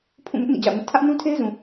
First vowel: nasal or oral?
nasal